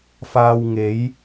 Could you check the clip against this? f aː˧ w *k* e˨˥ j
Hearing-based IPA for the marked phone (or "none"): ŋ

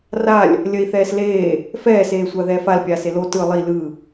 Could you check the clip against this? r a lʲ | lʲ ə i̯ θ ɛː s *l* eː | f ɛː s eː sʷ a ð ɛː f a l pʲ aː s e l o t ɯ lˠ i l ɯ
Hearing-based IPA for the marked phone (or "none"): l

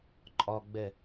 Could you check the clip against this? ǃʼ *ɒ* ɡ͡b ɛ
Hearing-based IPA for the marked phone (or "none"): ɒ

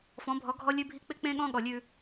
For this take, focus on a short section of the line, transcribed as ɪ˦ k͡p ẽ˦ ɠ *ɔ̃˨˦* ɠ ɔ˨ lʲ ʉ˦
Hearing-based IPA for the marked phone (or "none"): ɔ̃˦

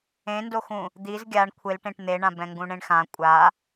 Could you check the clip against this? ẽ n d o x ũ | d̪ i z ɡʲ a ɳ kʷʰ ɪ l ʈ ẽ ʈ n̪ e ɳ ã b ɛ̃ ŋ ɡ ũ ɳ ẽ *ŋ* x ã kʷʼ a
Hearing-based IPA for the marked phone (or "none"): ɳ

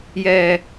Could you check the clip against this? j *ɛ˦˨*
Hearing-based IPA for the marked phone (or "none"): ɛ˨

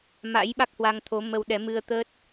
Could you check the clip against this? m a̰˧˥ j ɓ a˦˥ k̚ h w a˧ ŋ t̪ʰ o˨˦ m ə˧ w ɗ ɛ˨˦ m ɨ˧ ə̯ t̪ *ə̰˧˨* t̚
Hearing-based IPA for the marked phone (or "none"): ə˦˥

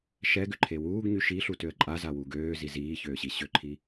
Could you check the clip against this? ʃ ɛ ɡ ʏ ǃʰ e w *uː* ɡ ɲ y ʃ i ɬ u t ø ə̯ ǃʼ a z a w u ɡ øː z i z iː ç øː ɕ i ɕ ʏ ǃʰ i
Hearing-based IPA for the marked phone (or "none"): uː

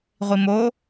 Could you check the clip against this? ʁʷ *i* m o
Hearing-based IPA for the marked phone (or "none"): i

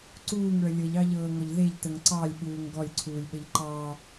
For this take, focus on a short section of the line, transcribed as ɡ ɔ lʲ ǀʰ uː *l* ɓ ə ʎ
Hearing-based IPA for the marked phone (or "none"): lʲ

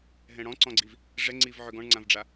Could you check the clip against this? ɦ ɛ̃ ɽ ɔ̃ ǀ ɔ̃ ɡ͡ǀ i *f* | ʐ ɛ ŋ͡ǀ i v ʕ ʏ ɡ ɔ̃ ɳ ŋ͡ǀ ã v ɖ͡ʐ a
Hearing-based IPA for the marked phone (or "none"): v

